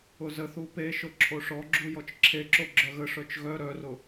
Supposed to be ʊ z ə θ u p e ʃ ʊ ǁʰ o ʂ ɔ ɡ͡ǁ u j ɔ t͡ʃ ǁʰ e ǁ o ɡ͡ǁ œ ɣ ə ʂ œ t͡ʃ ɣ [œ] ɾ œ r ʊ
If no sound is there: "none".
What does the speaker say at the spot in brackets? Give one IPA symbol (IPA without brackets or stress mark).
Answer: œ